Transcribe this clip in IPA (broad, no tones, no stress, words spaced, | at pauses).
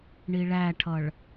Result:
ɳiɭæʈʰʌɭ